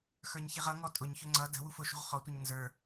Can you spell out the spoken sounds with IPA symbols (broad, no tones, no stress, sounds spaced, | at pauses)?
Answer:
x ə˞ ɲ ç i ʁ ʌ ŋ ɔ tʼ ʊ ɲ ç ʊ ŋ͡ǀ ʌ d ə̤ w u f ʊ ʃ ṳ ʁ χ ɔ tʷ ʌ ɲ n z ə˞